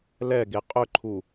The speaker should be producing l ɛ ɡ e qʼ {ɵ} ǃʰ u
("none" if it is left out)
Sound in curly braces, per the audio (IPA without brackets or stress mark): ɵ